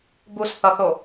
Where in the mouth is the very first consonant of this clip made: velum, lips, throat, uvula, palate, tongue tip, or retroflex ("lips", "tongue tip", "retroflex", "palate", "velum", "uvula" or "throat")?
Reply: lips